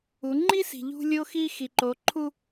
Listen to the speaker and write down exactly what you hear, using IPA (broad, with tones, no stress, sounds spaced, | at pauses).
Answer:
u˨˦ ŋ͡ǃ i˦ s i̤˨ ʎ ṳ˦ lʲ o˦ x i˦ x i˨ ǃ o˨˦ ǃʰ u˦